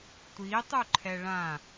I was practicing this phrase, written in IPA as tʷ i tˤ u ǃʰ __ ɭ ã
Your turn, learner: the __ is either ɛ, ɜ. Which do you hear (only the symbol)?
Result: ɛ